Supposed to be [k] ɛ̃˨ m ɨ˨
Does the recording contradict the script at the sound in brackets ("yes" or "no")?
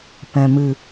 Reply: yes